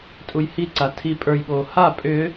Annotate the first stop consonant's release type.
ejective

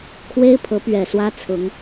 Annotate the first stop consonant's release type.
aspirated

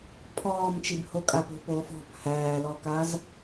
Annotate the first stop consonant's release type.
aspirated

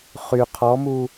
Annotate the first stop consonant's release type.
aspirated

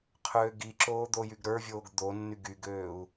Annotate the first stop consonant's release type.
aspirated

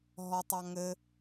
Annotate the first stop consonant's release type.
plain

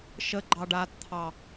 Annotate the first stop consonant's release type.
click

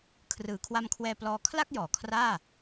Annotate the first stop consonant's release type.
aspirated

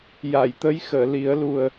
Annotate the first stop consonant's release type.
plain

